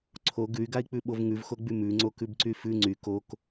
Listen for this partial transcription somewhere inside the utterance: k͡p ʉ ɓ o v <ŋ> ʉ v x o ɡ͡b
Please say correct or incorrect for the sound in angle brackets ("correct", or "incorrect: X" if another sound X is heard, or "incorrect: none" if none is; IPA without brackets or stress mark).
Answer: correct